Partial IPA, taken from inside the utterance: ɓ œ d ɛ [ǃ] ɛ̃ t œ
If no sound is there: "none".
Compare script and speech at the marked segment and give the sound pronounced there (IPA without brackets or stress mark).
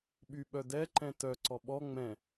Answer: ǃ